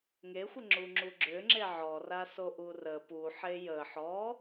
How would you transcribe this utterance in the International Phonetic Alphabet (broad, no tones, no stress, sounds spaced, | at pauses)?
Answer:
ŋ e xʷ ə ŋ͡ǁ u ŋ͡ǁ u ɡ͡ǁ ʏ ŋ͡ǁ e ʕ ɔ r a s o ʔ u r ə p u ħ e j ə ħ ɔ